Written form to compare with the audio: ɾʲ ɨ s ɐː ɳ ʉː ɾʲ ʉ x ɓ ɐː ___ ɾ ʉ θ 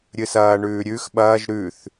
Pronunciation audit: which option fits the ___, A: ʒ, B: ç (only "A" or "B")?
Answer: A